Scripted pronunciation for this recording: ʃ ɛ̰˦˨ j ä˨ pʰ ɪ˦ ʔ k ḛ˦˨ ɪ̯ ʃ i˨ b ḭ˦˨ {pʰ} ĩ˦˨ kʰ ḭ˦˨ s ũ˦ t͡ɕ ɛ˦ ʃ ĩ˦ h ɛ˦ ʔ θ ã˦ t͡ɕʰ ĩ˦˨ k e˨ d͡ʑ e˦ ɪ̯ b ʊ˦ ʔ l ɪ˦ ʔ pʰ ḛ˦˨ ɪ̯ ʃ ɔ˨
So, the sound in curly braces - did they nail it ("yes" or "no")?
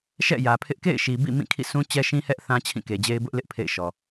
no